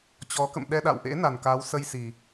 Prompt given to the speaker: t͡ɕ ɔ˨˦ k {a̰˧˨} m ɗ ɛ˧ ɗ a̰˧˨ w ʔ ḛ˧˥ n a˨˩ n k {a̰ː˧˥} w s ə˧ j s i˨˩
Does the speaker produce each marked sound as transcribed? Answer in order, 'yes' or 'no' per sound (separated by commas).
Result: no, no